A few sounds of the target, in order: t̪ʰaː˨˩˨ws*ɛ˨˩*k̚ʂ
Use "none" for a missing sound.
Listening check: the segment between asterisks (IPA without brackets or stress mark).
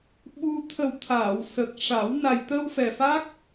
ə˨˩